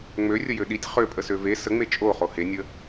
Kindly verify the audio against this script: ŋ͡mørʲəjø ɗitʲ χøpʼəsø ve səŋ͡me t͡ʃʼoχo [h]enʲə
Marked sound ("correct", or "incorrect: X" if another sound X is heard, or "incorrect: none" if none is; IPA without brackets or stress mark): correct